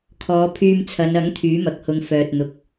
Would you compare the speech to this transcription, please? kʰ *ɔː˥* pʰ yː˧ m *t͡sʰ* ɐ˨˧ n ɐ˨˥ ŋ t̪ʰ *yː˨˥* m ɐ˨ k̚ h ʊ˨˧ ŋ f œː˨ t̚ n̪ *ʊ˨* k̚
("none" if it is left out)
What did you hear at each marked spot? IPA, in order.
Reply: ɔː˨˧, t͡sʰ, yː˨˥, ʊ˨

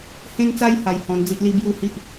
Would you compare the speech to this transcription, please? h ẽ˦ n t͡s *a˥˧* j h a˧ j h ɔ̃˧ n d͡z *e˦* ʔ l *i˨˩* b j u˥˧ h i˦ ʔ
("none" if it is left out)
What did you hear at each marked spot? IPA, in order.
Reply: a˦, i˦, i˦

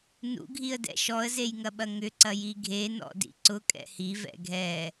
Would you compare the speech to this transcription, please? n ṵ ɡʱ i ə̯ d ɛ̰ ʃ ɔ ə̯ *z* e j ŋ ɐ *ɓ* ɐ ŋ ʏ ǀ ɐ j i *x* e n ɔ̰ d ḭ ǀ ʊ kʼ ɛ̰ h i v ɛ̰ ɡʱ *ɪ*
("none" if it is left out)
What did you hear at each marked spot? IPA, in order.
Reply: z, ɓ, ɡʱ, ɛ

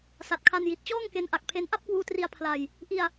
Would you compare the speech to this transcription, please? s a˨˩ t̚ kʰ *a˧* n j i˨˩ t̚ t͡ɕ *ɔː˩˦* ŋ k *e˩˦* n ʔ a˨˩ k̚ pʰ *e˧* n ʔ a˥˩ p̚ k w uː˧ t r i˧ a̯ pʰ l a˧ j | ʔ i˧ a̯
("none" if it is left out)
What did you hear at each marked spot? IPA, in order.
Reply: a˧, ɔː˥˩, e˦˥, e˧

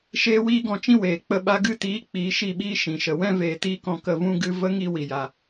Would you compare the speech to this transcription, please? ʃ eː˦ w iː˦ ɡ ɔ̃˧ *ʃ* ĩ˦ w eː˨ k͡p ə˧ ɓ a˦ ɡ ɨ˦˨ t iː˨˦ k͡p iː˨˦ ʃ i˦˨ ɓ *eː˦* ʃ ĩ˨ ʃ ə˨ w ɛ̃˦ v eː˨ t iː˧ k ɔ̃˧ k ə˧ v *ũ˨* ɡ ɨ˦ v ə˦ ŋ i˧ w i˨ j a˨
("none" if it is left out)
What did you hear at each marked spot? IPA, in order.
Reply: t͡ʃ, iː˦, ũ˦

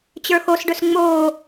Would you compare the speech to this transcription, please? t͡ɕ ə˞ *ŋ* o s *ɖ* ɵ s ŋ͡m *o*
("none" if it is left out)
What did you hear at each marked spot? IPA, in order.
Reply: x, ɖ, oː

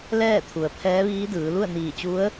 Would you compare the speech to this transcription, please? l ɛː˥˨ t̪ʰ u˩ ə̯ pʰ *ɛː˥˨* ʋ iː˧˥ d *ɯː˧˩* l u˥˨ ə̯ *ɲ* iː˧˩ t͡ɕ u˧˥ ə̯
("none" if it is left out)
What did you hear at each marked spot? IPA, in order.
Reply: ɛː˧˥, ɯː˩˧, n

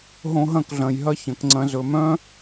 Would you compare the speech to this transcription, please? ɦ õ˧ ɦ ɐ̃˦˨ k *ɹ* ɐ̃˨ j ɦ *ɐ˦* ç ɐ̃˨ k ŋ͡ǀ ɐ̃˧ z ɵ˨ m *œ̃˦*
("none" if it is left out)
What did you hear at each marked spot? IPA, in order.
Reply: ɮ, ɐ˦, œ̃˦

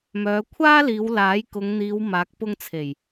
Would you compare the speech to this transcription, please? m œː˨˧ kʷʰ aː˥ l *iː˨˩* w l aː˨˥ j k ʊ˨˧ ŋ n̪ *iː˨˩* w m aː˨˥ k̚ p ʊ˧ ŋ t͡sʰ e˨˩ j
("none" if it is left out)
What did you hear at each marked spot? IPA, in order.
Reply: iː˨˧, iː˨˧

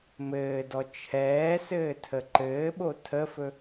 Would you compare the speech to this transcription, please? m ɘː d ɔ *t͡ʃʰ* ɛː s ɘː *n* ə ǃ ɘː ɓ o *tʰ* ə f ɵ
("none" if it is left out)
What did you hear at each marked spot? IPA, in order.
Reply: t͡ʃʰ, tʰ, tʰ

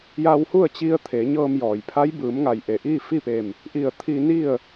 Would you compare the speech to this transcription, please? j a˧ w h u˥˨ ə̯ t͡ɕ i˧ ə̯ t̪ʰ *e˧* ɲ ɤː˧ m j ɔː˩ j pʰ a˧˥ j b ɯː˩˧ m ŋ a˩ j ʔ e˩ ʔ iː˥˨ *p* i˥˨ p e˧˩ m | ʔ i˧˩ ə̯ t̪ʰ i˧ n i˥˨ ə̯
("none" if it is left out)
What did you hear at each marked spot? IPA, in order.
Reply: e˩˧, f

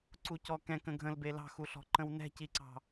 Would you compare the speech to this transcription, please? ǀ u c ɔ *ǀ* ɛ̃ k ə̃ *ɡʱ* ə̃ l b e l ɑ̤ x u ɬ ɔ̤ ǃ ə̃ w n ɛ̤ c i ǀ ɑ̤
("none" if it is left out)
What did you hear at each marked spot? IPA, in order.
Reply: k, ɡʱ

